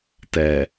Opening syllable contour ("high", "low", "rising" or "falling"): low